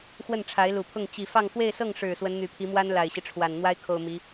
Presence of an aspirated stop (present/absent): present